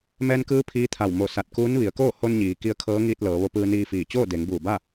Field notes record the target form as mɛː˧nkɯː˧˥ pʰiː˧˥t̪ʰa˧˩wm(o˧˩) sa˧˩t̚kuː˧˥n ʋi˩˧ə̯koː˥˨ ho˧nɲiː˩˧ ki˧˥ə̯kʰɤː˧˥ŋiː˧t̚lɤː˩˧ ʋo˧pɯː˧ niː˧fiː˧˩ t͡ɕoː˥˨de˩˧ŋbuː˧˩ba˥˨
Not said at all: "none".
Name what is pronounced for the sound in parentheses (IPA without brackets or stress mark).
o˧˩